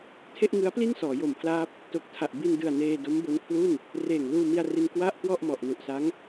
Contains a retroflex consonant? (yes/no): no